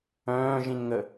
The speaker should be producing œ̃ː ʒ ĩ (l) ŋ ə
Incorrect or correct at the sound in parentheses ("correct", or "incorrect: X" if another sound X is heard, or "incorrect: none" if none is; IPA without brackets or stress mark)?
incorrect: n